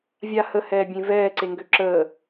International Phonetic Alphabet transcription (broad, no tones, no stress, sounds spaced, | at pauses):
vʲ a h ə h ɛː bʲ ẽ v ɛː ǀ e ŋ ɡ ø ǁ əː